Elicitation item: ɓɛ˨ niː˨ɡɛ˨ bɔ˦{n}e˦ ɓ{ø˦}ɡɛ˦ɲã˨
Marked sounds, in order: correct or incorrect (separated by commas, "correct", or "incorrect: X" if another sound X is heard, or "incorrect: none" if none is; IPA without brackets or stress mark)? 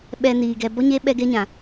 incorrect: ɲ, incorrect: ɛ˦